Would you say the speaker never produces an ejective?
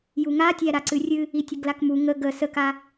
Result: yes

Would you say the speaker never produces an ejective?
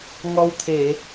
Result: yes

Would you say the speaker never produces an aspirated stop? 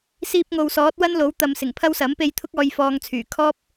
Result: no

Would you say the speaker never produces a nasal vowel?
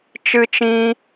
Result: no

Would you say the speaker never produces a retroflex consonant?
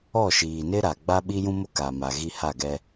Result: yes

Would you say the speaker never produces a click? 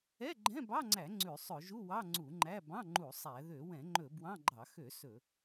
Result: no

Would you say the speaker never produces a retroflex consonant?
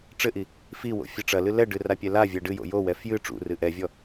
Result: no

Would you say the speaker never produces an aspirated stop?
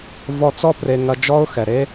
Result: yes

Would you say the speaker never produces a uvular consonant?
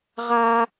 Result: no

